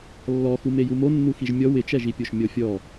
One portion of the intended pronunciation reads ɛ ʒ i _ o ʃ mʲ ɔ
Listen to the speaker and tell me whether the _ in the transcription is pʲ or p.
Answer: pʲ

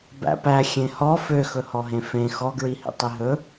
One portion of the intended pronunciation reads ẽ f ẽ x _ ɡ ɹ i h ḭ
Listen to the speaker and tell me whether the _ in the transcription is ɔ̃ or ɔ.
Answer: ɔ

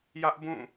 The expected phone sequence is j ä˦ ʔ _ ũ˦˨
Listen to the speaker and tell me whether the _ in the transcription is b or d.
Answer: b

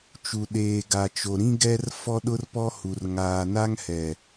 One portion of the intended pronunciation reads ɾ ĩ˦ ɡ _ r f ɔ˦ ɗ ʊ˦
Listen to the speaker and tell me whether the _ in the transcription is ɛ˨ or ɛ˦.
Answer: ɛ˦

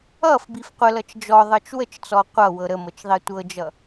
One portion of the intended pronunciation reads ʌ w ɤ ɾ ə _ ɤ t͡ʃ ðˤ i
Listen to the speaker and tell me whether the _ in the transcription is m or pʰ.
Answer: m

